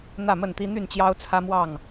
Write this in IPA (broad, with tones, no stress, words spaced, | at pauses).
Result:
n̪ä˥˨mə˥˨nt̪i˦ n̪y˥˨nt͡ɕjɑ˦ʊ̯t͡sʰä˦mwɑ˥˨ŋ